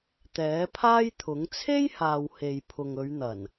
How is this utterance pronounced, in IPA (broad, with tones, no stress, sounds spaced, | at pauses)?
t̪ ɛː˨˥ pʰ aː˥ j t̪ʰ ʊ˨˥ ŋ t͡sʰ e˥ j h aː˨ w h e˨ j pʰ ʊ˨ ŋ ɵ˨˧ ɥ n̪ ɐ˨˩ n